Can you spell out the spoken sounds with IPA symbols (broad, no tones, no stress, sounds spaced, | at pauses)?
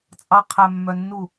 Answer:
t͡sʼ ɑ qʰ æ mː œ nː u